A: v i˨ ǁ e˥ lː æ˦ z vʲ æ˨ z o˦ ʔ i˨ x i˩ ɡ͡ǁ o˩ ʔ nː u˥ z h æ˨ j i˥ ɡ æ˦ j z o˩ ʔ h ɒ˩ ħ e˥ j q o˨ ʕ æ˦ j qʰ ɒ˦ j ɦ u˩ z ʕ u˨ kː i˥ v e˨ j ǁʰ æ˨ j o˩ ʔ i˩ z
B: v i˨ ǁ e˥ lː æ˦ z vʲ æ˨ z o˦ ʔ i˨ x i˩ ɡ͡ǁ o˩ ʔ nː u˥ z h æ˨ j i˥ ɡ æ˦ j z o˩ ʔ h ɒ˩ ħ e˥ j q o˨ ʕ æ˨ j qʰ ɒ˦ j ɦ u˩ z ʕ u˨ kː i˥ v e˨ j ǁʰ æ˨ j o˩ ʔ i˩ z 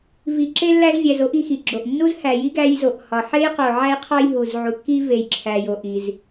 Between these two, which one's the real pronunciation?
A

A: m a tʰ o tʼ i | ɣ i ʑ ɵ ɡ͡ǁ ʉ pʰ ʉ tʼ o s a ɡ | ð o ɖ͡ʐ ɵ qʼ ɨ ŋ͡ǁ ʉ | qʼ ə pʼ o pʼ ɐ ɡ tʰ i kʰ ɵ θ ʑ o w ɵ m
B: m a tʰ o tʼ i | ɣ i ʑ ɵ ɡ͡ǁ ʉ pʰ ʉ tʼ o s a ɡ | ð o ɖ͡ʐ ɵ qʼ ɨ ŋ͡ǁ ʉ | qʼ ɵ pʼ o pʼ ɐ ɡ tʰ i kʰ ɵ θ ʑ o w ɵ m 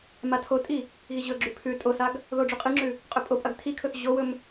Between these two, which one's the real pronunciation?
B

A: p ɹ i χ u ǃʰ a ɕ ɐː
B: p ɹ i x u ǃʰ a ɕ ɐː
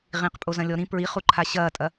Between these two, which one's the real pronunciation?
A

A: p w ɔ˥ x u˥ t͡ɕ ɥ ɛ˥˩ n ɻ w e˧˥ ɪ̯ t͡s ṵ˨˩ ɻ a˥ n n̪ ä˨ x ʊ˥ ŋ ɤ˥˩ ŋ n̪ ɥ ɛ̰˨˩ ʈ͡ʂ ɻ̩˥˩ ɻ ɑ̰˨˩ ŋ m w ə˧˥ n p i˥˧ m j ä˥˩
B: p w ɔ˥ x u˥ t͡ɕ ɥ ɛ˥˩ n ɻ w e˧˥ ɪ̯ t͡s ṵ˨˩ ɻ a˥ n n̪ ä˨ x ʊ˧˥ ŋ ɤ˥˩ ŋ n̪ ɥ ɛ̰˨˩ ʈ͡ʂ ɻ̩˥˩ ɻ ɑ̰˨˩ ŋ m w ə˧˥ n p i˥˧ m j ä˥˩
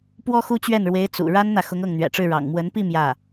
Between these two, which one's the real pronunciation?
B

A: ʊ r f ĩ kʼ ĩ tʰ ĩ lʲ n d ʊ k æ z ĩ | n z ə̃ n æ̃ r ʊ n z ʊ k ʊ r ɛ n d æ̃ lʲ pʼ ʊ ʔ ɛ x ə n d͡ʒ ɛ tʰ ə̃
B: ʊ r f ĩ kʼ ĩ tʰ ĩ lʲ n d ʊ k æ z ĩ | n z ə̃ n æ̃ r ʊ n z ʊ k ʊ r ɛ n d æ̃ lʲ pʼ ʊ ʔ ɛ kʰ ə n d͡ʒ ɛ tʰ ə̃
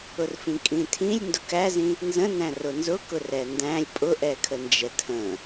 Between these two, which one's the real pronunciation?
B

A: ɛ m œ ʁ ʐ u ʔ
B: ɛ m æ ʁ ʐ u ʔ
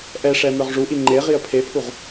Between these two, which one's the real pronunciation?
A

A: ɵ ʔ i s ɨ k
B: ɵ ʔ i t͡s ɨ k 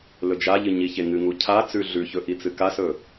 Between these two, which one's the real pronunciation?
B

